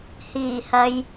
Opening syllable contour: low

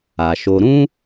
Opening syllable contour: low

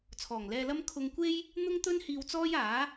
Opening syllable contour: low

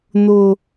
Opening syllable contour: low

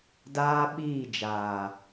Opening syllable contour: high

